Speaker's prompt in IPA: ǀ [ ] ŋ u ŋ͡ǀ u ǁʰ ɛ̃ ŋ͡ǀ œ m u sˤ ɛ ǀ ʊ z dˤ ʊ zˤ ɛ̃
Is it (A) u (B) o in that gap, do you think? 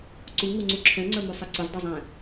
A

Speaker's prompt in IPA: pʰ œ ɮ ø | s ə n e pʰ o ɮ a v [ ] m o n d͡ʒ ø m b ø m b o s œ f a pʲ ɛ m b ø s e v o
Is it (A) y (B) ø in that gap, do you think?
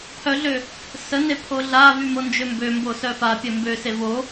A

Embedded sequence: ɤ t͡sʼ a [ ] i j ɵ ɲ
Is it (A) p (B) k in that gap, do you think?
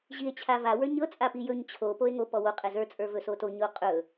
A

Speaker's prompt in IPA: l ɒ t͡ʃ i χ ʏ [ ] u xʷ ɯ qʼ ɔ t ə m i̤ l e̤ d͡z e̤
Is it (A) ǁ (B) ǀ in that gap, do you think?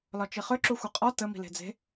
A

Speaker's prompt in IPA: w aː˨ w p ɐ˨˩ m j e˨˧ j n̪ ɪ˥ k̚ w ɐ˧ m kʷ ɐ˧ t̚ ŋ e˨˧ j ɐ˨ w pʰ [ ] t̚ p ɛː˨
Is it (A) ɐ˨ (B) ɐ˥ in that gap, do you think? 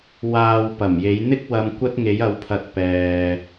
A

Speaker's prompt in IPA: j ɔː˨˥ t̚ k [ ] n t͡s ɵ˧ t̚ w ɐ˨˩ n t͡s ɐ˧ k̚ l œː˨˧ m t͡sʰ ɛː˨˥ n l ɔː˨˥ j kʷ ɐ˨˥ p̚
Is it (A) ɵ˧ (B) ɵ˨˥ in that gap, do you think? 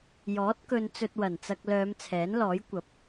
A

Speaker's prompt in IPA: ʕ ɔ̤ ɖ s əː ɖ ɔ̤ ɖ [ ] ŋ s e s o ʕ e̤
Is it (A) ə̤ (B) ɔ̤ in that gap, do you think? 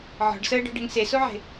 A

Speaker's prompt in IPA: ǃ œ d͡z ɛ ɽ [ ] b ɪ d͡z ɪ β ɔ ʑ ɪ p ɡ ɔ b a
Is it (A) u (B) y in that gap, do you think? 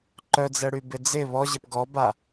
B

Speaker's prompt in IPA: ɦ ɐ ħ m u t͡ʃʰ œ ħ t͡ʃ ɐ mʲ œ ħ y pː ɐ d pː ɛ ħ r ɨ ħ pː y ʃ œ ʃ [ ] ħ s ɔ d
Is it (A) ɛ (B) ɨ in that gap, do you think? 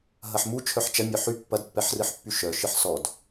B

